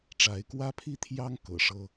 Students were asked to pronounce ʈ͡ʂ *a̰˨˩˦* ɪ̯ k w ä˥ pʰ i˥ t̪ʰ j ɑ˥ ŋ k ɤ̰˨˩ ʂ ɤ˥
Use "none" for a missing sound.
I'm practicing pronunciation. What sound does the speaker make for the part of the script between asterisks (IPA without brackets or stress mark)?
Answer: a˧˥